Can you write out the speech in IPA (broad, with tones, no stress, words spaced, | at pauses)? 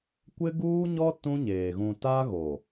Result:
kʷɪ˦ɡuː˦ɲɔ˦ tũ˦ɲeː˨ ɣũ˨ta˦ ɣo˨